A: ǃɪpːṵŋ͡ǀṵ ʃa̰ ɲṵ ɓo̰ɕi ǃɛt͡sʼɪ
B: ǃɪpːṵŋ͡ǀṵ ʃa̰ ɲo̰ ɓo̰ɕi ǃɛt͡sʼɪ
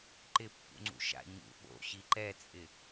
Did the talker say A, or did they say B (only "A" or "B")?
A